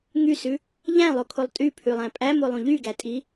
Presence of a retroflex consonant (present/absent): absent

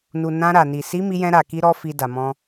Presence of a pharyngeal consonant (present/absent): absent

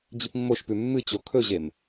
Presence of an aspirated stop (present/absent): present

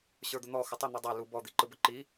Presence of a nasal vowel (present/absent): absent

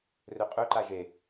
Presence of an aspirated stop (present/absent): absent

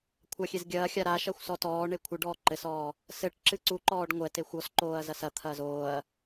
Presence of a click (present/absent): present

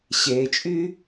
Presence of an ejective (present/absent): present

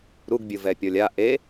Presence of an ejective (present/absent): absent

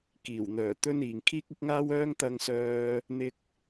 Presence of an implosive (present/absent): absent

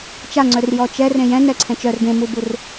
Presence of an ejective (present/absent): absent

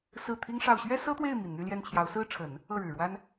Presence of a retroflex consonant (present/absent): present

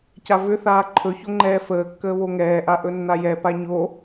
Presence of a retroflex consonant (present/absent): absent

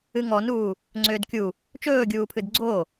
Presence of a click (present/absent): present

